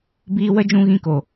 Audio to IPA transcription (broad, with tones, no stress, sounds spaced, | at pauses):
b iː˧ w ə˦ d͡ʒ ũ˧ ɣ ĩ˧ k o˨